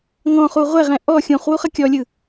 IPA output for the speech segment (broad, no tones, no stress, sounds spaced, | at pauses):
ŋ ɔ̃ χ u ʁʷ ɛ ʁ ɛ̃ ʔ ɔ xʲ ũ χ w u χ ʌ kʲ ɔ lʲ ɯ